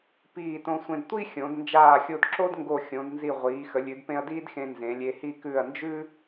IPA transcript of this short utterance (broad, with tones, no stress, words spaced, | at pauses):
piː˧˩tõ˧sʷẽ˧d tʷi˥xʲõ˩˧d nd͡ʒaː˧˩xʲo˧dǁo˥dŋɡo˧˩ xʲõ˩˧dnzi˧˩ ʁʷiː˩˧xə˩˧lʲʉ˩˧dpẽ˧ɐ̯ diː˥dxẽ˧ nzẽ˩˧lʲe˧hi˥˧ kʉ˧˩ɐ̯nd͡ʒʉ˥